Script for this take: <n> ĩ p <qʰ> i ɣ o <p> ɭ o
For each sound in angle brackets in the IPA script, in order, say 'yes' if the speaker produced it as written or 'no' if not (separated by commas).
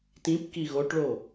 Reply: no, no, no